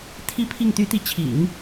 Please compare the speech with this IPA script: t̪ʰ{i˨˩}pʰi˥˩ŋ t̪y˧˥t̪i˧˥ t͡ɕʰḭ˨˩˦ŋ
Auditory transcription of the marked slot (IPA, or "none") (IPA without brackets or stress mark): i˥˧